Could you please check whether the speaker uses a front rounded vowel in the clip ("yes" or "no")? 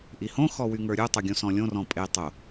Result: yes